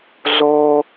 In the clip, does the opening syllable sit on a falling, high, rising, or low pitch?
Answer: high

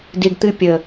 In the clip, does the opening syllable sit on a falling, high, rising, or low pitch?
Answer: low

